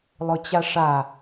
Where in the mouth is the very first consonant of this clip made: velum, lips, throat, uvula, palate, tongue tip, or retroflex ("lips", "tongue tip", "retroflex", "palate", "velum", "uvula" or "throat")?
tongue tip